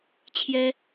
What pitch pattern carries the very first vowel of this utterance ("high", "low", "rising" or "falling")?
high